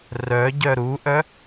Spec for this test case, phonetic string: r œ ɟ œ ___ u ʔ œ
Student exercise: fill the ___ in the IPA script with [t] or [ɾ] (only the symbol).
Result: ɾ